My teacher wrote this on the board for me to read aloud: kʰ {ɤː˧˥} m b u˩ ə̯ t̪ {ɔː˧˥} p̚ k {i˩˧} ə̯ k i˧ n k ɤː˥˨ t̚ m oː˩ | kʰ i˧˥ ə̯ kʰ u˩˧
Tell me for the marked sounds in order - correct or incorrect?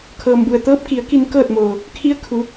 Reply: incorrect, incorrect, correct

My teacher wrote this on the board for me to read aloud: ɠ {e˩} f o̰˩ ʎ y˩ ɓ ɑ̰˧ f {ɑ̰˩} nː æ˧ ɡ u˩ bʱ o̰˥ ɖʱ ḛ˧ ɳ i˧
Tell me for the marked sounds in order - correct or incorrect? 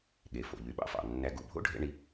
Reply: correct, correct

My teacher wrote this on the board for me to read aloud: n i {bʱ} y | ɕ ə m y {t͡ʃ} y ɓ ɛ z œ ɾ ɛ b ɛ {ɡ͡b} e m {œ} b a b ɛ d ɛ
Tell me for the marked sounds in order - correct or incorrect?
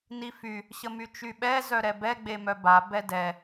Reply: incorrect, correct, correct, correct

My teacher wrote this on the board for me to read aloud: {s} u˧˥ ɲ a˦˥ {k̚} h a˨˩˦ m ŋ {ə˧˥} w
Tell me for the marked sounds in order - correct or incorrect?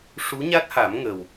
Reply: incorrect, incorrect, incorrect

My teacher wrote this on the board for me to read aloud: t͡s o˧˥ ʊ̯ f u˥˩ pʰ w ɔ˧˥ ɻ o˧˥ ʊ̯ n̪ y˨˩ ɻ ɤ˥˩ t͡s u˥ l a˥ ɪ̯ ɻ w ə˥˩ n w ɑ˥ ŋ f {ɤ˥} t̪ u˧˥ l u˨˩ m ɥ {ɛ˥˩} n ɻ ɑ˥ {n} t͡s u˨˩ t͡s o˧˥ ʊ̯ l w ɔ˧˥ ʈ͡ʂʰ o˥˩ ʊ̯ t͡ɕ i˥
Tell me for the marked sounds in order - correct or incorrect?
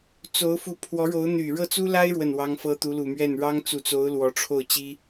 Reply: correct, correct, incorrect

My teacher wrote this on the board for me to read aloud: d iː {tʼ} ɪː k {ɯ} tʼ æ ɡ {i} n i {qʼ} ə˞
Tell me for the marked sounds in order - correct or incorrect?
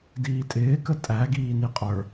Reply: correct, incorrect, incorrect, correct

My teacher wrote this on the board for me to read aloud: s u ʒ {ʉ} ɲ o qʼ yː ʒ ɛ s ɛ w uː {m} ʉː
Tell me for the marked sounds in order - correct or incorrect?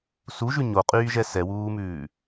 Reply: correct, correct

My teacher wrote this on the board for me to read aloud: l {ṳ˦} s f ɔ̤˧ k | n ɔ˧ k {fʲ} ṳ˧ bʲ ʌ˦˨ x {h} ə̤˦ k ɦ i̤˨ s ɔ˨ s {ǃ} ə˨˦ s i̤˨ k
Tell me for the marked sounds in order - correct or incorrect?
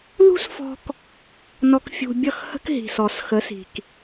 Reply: correct, correct, correct, incorrect

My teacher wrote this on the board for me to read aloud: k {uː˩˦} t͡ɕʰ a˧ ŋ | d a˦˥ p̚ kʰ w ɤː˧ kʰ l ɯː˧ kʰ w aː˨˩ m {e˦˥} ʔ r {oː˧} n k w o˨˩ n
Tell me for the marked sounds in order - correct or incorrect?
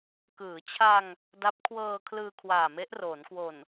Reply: incorrect, correct, incorrect

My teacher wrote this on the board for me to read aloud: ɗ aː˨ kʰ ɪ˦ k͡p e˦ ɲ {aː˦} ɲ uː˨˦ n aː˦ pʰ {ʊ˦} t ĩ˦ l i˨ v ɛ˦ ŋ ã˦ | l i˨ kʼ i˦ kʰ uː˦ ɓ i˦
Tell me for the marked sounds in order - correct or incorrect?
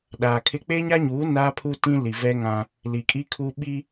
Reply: incorrect, incorrect

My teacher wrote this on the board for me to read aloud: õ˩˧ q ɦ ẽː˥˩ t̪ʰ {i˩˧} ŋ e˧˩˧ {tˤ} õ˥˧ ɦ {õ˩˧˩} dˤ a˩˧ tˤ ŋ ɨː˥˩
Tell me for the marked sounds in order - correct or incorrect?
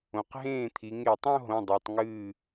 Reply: correct, correct, correct

